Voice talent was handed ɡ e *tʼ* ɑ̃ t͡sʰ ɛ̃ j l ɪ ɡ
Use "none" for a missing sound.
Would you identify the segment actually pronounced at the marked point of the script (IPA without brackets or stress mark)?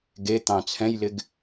t̪